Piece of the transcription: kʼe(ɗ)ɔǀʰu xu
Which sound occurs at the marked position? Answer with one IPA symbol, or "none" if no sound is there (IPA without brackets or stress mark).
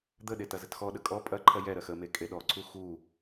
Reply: ɗ